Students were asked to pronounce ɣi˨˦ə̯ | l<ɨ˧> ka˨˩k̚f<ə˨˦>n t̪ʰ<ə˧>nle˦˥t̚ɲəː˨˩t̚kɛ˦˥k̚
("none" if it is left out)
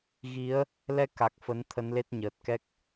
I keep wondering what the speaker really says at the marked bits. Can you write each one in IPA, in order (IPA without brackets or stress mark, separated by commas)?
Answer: ɛ˧, ə˨˦, ə˨˦